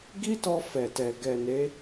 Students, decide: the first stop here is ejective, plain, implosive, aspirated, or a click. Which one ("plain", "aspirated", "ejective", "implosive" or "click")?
plain